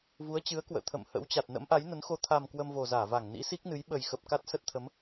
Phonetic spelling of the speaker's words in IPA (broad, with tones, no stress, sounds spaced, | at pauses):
v u˨˦ ə̯ t͡ɕ ɨ˨˦ ə̯ k w ə̰ː˧˨ t̪ʰ ə̰˧˨ m h ə̰˧˥ w t͡ɕ a˨˩ t̚ n ə̰˧˥ m ʔ a˨˦ j n ə˨˦ n x o˧ t̪ʰ a˨˩ m k w ə˧ m v o˨˩ z aː˧˩ v a˧˩ ŋ n ḭ˧˥ s i˦˥ k̚ n ɨ˨˦ j ɓ ə˨˩ j x ə˨˩ p̚ k a˦˥ t̚ s ə˦˥ t̚ t̪ʰ ə˨˦ m